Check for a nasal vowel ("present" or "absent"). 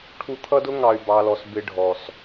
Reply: absent